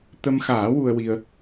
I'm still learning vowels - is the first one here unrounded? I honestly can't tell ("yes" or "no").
yes